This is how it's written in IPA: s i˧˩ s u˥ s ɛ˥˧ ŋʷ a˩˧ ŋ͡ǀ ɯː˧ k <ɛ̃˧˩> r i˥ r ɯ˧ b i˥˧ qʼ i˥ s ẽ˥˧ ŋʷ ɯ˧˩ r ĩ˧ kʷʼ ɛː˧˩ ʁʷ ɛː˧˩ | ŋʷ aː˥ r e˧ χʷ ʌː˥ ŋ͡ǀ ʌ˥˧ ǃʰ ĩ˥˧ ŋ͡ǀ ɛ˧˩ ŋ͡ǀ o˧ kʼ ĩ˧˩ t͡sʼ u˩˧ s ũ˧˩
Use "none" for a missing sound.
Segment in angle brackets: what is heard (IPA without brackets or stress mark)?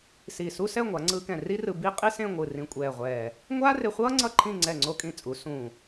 ɛ̃˧˩